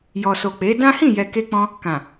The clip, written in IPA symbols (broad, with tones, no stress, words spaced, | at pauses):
jɔ˨so˨k͡pe˨˦ dã˦ hĩ˦˨jɛ˨ke˧k͡pɔ̃˧ | kã˨